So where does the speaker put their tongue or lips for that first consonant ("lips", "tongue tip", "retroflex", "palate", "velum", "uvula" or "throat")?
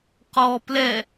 uvula